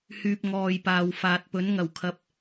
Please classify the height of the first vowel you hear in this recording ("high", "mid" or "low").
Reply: high